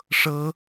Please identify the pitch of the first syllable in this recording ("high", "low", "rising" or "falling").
high